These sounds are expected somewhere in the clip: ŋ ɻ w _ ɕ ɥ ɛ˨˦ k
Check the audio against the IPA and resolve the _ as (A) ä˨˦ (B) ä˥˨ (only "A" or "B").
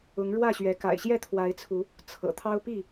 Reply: B